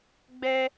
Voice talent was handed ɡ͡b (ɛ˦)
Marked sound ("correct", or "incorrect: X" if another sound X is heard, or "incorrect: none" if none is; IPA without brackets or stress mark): correct